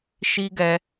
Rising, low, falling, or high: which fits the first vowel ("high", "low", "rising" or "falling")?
high